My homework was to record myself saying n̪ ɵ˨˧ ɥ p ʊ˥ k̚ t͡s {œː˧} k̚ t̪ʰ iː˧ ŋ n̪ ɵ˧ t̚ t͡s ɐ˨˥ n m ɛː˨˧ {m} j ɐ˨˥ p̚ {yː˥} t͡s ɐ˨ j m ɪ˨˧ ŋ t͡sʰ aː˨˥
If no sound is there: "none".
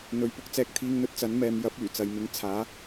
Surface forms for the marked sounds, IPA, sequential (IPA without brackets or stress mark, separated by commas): ɛː˧, m, yː˨˩